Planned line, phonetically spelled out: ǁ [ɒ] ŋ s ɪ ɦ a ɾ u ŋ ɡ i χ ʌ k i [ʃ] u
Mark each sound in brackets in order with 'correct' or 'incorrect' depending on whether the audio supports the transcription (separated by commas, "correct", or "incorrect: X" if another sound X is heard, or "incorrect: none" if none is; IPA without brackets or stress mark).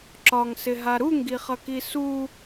correct, incorrect: s